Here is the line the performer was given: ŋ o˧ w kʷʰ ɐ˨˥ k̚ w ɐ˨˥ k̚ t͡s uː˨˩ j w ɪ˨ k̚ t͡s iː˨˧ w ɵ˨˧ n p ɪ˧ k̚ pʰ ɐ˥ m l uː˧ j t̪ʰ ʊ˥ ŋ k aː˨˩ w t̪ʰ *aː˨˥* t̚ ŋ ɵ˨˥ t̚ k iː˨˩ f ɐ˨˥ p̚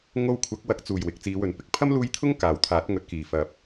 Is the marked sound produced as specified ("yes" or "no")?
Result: yes